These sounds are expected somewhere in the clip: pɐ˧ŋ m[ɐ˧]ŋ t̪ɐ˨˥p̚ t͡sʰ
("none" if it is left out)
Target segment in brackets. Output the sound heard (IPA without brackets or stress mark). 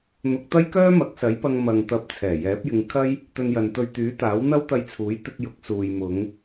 ɐ˨